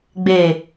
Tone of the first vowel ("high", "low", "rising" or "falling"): low